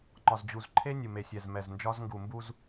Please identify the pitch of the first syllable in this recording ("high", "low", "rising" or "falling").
low